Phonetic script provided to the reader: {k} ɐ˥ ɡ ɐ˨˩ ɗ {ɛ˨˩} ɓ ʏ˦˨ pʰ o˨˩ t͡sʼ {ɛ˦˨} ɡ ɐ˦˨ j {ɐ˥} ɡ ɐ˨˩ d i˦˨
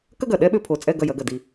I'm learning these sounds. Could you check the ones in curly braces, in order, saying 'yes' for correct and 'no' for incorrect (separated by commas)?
yes, no, yes, no